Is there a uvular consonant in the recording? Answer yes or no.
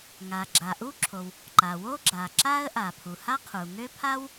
yes